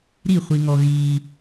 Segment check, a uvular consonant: present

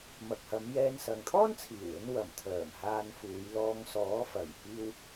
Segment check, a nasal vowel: absent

